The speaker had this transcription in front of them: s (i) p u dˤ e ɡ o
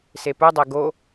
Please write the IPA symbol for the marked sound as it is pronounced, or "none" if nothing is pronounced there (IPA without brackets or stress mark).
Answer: e